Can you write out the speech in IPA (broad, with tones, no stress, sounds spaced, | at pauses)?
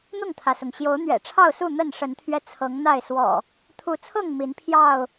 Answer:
n̪ ʊ˥˨ ŋ t̪ʰ ä˩ s ʊ˩ ŋ ɕ j o˨˦ ʊ̯ n̪ ɥ ɛ̰˨˩ ʈ͡ʂʰ ɑ˥˨ ʊ̯ s u˥˨ n̪ ə˥˨ n ʂ ə˨˦ n t̪ʰ ɥ ɛ˧ t͡sʰ ɤ˨˦ ŋ n̪ a˥˨ ɪ̯ s w ɔ̰˨˩ | t̪ʰ u˨˦ t͡sʰ ɤ˥˨ ŋ m i˨˦ n pʰ j ɑ˥˨ ʊ̯